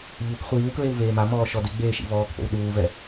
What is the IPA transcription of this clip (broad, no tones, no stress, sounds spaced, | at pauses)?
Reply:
ʎ u k χʷ iː w k ɹ e w v eː m a m ɔː ʃ ɔ d ɪ ɡ͡b eː ʃ ḭ v ɔː k p o̰ w ɗ uː v ɛ